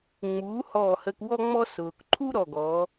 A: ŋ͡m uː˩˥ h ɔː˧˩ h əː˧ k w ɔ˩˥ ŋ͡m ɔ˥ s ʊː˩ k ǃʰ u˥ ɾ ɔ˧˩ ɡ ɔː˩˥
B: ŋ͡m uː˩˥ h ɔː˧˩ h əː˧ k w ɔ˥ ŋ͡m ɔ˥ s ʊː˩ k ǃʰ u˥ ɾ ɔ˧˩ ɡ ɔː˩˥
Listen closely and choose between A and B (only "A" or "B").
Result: B